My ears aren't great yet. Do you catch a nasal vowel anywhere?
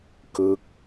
no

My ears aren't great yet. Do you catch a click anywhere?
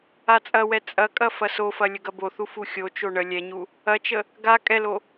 no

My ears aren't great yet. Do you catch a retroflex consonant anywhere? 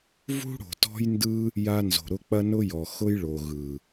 yes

